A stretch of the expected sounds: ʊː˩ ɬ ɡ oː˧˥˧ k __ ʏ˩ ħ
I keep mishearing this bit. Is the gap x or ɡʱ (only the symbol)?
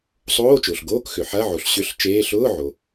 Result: x